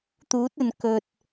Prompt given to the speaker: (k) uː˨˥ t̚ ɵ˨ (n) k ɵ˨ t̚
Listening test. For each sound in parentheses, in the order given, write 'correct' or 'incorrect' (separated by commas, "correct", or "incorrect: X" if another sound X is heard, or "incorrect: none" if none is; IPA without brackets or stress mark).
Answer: incorrect: t̪, correct